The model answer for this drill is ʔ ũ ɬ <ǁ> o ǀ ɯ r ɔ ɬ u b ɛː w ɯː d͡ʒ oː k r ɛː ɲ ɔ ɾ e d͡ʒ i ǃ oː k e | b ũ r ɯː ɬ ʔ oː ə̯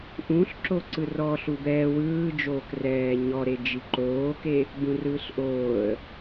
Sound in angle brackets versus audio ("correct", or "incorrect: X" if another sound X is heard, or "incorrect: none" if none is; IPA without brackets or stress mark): correct